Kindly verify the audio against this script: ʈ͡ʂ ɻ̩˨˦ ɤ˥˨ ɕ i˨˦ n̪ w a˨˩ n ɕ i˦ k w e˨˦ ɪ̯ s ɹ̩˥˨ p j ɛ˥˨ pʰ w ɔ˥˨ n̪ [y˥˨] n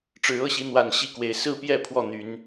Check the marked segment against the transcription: incorrect: y˨˦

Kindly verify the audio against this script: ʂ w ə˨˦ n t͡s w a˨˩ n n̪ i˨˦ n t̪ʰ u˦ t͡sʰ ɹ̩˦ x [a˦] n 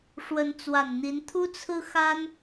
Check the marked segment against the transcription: correct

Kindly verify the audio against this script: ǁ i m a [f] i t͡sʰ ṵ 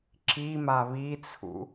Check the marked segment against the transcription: incorrect: β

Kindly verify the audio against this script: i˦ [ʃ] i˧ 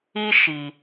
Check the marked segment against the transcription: correct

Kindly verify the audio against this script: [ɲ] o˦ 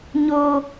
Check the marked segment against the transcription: correct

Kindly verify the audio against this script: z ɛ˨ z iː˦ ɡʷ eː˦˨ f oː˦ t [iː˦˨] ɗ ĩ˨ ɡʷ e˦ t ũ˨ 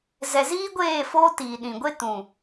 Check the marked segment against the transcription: incorrect: iː˨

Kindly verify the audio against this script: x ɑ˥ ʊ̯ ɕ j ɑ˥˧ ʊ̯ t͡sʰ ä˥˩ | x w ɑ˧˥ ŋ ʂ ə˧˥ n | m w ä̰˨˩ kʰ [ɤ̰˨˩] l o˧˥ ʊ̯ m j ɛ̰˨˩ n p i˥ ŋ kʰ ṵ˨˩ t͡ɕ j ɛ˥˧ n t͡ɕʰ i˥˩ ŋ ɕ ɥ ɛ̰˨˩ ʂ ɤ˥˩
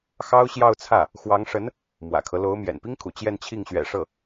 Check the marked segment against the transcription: incorrect: ɤ˦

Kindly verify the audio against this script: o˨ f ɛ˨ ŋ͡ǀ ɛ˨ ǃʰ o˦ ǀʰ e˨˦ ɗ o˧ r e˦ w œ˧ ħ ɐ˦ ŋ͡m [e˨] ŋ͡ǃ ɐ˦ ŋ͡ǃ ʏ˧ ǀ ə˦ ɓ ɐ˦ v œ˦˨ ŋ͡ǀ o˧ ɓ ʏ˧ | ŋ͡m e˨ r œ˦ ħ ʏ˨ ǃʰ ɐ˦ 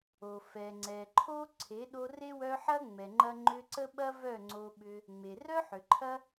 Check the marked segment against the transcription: incorrect: ɛ˨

